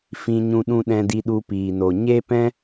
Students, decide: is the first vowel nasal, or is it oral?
nasal